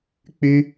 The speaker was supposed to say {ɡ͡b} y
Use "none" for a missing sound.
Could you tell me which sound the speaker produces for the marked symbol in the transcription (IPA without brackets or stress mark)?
k͡p